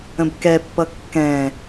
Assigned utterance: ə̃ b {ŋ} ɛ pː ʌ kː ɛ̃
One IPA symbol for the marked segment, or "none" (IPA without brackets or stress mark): k